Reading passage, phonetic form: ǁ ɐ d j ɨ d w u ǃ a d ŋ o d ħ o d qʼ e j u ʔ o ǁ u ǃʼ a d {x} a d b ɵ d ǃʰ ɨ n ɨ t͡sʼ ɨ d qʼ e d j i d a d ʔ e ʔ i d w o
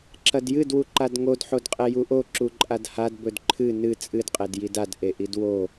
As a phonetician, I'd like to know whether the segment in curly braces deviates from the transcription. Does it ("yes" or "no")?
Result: yes